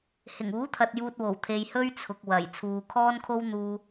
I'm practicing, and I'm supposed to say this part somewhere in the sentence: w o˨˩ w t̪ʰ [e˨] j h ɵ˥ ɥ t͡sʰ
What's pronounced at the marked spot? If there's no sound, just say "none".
e˨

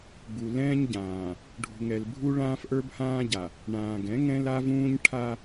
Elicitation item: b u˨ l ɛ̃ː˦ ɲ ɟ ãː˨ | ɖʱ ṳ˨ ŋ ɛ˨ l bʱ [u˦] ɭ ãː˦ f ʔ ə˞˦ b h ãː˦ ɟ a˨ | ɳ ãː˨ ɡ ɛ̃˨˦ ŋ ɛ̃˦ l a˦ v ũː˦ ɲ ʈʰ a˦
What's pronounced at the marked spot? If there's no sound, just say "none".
u˦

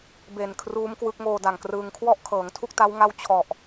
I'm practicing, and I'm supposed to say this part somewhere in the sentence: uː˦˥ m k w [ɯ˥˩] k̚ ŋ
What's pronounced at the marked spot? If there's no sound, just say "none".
ɯ˦˥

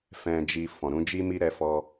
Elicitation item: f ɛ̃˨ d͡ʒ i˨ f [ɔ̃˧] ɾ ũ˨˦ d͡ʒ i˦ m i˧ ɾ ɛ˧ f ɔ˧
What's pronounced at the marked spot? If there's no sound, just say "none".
ɔ̃˨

